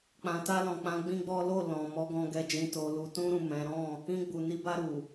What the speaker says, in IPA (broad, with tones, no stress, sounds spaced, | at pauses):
k͡p ã˨ t a˧ l ɔ̃˨ k͡p ã˨˦ ɡ͡b ĩ˦ ɡ͡b ɔ˦ l o˦˨ l ɔ̃˨ m ɔ˨˦ ɡ ɔ̃˧ ɡ ɛ˧ d͡ʒ ĩ˧ t o˨ l u˨ t ũ˧ ɾ ũ˨ m ɛ̃˨˦ ɾ ɔ̃˦˨ | ĩ˧ ɡ͡b u˨ n i˨˦ b a˧ ɾ u˨